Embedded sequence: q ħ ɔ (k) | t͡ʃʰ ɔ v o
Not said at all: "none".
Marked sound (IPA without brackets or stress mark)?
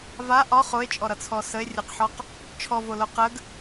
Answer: q